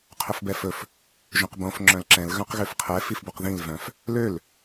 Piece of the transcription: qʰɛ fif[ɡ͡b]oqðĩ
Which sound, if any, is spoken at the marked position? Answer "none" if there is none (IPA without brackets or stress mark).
b